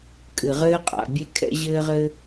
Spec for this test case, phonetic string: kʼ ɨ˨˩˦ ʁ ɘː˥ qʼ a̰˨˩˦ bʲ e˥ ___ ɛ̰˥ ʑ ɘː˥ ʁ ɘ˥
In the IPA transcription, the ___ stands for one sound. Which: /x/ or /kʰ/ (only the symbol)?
kʰ